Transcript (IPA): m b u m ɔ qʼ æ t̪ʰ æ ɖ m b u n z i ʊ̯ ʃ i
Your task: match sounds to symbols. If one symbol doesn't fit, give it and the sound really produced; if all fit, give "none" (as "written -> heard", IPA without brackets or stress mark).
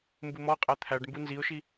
none